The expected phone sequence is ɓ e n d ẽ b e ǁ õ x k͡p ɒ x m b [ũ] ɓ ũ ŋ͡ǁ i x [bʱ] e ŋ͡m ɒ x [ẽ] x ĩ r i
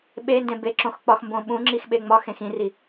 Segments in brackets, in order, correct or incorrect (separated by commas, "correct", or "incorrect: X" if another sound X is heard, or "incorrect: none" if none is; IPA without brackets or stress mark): incorrect: õ, incorrect: ɓ, correct